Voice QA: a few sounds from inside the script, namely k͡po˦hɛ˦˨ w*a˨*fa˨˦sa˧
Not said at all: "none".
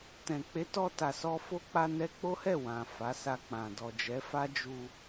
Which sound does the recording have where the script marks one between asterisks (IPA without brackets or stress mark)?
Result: ã˨